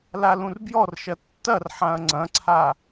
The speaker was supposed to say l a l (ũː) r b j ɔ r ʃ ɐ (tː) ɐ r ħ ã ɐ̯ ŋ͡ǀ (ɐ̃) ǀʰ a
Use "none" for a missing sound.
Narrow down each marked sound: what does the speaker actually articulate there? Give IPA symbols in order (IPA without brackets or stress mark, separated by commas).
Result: ũ, tː, ɐ̃